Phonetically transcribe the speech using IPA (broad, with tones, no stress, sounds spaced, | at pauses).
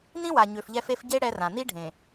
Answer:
n ĩ˦ w a˨ ɲ ø˨ f ʎ ɛ˦ f e˦ f ɟ e˦ ɽ ɛ˦ r ã˨ n̪ i˦ ɖʱ ẽ˨